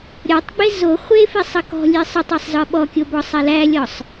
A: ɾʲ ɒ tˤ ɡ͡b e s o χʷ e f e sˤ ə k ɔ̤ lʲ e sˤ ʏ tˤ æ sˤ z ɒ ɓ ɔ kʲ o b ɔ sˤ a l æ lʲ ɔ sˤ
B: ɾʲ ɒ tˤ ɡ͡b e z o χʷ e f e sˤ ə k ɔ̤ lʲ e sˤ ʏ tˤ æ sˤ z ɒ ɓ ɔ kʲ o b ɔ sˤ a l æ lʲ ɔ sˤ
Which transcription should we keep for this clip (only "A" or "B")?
B